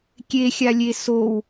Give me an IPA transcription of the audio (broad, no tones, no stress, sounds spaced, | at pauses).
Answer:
kʲ e xʲ a lʲ e s o w